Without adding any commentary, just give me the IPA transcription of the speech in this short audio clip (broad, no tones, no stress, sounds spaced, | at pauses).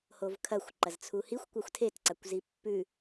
h o v kʰ ɐ xʷ ǃ ɐ z t͡sʰ u h i xʷ kʷ ɐ xʷ tʰ e t ǀ a kʷ z i pː ʉ